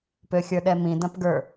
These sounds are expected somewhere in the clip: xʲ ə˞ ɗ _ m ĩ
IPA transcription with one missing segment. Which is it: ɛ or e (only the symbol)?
ɛ